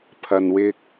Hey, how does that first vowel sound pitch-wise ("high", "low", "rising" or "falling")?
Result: low